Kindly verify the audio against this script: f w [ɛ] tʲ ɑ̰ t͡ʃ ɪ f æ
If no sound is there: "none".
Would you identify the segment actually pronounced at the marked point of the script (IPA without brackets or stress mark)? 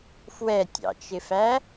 ɛ